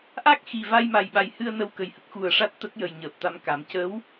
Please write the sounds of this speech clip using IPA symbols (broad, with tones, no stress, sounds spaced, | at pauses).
ʔ a˦˥ k̚ x i˨˩ v a˧ j m a˨˩ j ɓ a˨˩ j h ɨ˧ ə̯ n ə˧ w k ə˨˩ j h ə˦˥ k̚ x u˨˩ ə̯ ʂ a˦˥ t̚ t̪ ə˦˥ k̚ j ə˨˩ j ɲ əː˨˩ p̚ t̪ a˧ m k a˨˩˦ m c ə˧˥ w